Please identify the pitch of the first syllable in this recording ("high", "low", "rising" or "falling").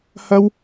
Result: high